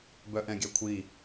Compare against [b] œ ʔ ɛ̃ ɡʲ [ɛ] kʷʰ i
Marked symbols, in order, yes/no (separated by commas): yes, no